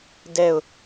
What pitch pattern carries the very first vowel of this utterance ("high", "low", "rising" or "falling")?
falling